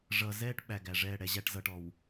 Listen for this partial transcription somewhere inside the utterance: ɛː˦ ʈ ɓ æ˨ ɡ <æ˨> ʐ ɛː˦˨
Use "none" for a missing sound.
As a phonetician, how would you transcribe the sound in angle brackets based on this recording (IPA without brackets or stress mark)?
æ˨